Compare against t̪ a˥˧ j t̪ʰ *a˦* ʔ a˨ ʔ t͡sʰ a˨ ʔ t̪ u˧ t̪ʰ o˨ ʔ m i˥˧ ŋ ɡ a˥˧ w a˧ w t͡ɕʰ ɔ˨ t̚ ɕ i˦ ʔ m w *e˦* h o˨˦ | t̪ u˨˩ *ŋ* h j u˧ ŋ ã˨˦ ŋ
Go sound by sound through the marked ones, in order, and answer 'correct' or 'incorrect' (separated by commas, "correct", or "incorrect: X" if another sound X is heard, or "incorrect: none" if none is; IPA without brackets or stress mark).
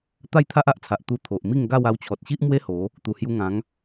correct, correct, incorrect: none